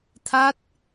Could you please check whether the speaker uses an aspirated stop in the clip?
yes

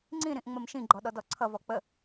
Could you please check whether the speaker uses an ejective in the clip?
no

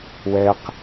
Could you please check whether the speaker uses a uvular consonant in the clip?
yes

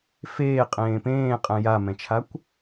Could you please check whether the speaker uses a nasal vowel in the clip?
yes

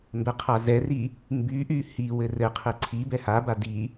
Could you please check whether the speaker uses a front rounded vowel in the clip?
yes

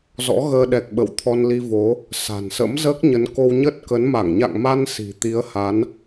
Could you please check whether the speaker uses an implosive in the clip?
yes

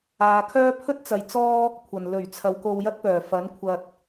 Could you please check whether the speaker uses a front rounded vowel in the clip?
yes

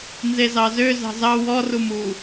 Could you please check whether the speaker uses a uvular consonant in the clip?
no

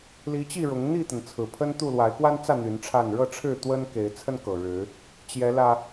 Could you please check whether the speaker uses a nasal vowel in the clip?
no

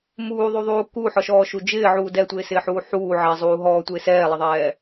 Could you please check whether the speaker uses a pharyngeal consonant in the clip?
yes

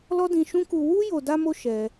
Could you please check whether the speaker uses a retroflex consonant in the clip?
no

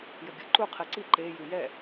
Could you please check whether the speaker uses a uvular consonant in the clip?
yes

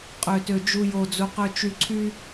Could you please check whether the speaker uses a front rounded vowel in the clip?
yes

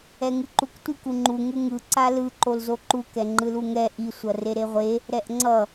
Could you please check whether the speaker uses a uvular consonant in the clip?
yes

